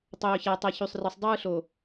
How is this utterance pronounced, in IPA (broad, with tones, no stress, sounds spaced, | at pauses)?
tˤ øː˨ ç æ˨ tˤ e˨ ç y˨ sˤ r ɯ˨ sˤ dˤ ɯː˦ ɬ o˨